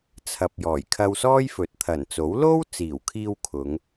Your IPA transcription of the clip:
t͡sʰ ɐ˨ p̚ j ɔː˨˩ j kʰ ɐ˧ w s ɔː˥ j f ɵ˨˥ t̚ t̪ʰ ɐ˨˩ n t͡s o˨˥ w l o˥ w t͡s iː˨˩ w kʰ iː˧ w kʰ ʊ˨˧ ŋ

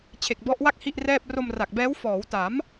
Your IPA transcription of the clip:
t͡ɕʰ e˨˩ k̚ b ɔ˦˥ ʔ w a˥˩ k̚ h i˥˩ ʔ r ɛː˥˩ p̚ r o˧ m r a˨˩ k̚ b ɛː˦˥ w f ɔː˩˦ w t a˩˦ m

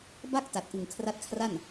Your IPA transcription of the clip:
b a˥˩ k̚ t a˨˩ t̚ ʔ ɯ˨˩ ŋ kʰ r a˦˥ t̚ kʰ r a˥˩ n

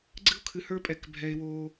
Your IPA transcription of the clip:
ɡ͡ǀ ɨ˦ o̯ kʰ ɨ˨ h ə˞˦ pʼ ɛ˨ k bʱ ɛ˨ e̯ w o˦

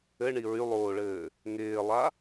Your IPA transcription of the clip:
ɘ ɳ i ɹ y lˠ oː ɭ ɘː | ŋ ɪː lˠ a

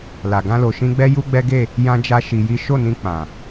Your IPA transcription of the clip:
l a˨ ɡ ã˧ l o˨ ʃ ĩ˧ ɡ͡b ɛ˦ j u˦ ɡ͡b ɛ˦ ɡ e˦˨ | j ã˧ d͡ʒ a˧ ʃ i˧ j i˦ ʃ o˦˨ n ĩ˧ k͡p ã˨

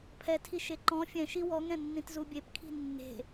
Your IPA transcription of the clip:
pʰ ɛ tʰ i ʃ e ǃ ɔ̃ fʲ ɛ̃ ʃ i w ɔ ŋ ɛ̃ nː ĩ t z u bʲ e p kʰ i̤ nː e̤

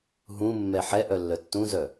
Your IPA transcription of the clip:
ɦ ũ mː ɛ ħ ɛ ʔ œ lː œ tː ũ z œ

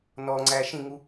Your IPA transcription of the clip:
n ɔ ŋ͡ǀ æ ʃ ĩ ŋ u

